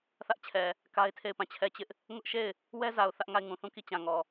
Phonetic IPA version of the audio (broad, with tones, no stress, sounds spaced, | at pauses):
θ ä˦ ʔ t͡ɕʰ ɛ˨ | k a˦ ɪ̯ tʰ e˦˨ ɪ̯ p ã˦˨ t͡ɕʰ ɛ˦˨ t͡ɕ ɪ˦ ʔ | ŋ ʊ˦ ʔ ʃ e˦˨ ɪ̯ | w ɛ˦ z a˨ ʊ̯ θ ä˦ ʔ ŋ a˦˨ ɪ̯ ŋ ũ˨ θ ũ˦˨ k i˦˨ t͡ɕ ã˨ ŋ ɔ˨